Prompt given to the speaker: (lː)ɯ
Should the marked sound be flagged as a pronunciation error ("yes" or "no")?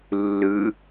no